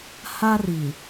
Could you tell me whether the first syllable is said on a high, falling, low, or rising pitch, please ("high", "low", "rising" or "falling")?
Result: high